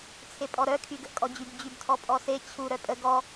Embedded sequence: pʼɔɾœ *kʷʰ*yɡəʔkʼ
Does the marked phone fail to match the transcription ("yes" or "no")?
yes